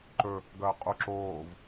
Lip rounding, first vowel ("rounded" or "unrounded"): rounded